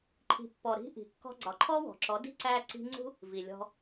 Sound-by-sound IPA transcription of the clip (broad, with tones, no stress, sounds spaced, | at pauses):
ǃʰ i̤˨ pː ɔ˨ ɾ i̤˧ ʔ i̤˨ kː ɔ̤˧ ɡ͡ǀ ɒ˨ ǃʰ ɔ˦ w ɔ̤˨ ǁ ɔ˨˦ d i̤˦ ǀ æ˧ ǀ i̤˧ ŋ͡ǀ ṳ˦ | v i˨ lʲ ɔ̤˧